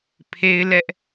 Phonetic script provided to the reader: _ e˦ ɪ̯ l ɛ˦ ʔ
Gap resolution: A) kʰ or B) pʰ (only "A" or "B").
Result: B